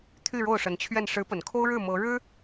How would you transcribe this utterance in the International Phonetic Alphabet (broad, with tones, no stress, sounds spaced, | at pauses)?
t̪ʰ y˥˧ ɻ o˥˩ ʊ̯ ʂ ə˧˥ n t͡ɕʰ ɥ ɛ˥˩ n ʂ ɻ̩˧˥ p ə˨˩ n kʰ o˥ ʊ̯ ɻ ɻ̩˥˩ m ɤ˧˥ ɻ ɻ̩˥